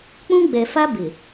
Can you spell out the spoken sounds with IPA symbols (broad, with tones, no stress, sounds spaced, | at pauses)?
k͡p ũ˦ ɡ͡b ɛ˨ f a˦ b ɪ˨